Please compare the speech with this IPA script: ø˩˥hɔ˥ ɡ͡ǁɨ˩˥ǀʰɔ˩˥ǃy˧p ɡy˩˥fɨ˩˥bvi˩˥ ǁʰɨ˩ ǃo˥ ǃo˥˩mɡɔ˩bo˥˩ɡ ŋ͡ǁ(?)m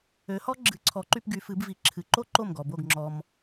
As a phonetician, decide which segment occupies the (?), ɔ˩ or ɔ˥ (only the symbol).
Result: ɔ˩